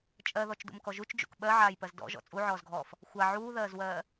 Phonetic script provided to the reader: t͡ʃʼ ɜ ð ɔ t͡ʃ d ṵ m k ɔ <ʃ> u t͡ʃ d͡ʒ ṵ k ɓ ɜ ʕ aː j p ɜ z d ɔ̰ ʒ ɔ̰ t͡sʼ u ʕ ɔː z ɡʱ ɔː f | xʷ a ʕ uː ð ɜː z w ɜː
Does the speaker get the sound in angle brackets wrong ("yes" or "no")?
yes